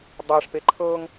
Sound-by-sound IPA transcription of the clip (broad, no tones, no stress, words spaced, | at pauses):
dˤaʂpe ǃʰɤŋ